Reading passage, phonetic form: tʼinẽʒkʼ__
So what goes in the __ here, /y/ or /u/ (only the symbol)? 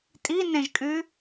y